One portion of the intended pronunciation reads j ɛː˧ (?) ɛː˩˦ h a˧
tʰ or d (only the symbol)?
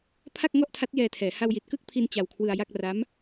tʰ